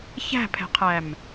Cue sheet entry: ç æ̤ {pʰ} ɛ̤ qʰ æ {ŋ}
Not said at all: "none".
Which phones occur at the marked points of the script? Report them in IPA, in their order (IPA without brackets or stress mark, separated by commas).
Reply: pʰ, m